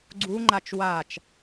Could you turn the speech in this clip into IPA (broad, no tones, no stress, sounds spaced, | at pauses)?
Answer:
ɡ͡ǀ u ŋ͡ǃ a t͡ʃ w a t͡ʃ